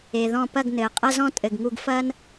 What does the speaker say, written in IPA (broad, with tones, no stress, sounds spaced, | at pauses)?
e˨ ð ɔ̃˦˨ p ɐ˦˨ ɡ n ɘː˨ qʼ ɐ˦ z ɔ̃˦ tʼ ɘ˨ ɡ ŋ u˧ ɡ f ɐː˦ n